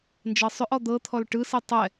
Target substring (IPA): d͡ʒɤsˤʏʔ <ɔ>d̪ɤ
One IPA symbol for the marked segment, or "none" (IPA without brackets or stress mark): ɔ